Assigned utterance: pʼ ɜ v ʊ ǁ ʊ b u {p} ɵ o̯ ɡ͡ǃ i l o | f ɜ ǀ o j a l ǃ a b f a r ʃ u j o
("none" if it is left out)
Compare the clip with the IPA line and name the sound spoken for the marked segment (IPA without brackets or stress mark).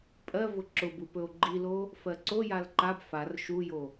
p